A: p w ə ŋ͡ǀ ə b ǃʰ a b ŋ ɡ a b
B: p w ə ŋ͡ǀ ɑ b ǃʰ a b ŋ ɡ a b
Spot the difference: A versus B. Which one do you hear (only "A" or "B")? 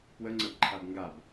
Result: A